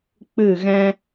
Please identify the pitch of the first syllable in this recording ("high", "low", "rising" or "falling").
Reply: falling